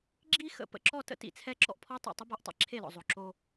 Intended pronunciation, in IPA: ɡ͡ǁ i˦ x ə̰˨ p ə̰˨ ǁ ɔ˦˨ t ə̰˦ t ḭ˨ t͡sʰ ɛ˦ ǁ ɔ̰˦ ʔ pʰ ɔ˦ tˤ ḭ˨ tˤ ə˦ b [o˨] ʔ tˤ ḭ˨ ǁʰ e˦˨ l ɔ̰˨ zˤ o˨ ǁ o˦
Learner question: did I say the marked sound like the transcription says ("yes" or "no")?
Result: no